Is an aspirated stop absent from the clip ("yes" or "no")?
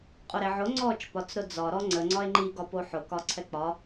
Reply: no